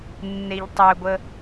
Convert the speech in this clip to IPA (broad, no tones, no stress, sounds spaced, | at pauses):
nː e ʎ tˤ ʏ ɡʷ ə